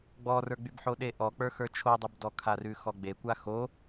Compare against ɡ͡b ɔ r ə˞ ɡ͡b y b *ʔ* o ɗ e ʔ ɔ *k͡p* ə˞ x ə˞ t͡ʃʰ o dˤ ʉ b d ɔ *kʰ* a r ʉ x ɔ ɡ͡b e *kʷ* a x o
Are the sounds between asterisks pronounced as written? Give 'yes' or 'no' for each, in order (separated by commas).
no, yes, yes, yes